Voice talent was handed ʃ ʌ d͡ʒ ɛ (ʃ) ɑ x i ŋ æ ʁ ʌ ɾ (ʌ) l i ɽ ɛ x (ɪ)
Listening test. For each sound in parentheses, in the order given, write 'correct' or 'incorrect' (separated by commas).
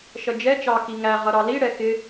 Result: incorrect, incorrect, correct